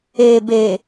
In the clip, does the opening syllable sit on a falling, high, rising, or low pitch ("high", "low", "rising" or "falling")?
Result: low